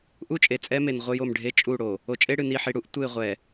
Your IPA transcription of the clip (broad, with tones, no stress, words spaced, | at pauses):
ʔu˦t͡ʃʼe˨t͡sʼɛ˦me˨n ʁʷə˦jo˦˨mɖʱe˦ t͡ʃʼu˦˨ɽo˨ | o˨t͡ʃʼe˦ ɽɨ˨ni˨ħi˨ ɽu˦ʔ tʷɨ˦˨ɪ̯ʁʷɛ˨